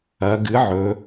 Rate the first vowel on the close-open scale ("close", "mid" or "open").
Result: open